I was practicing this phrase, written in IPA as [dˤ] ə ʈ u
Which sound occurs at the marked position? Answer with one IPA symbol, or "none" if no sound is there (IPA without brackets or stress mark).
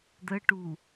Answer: d̪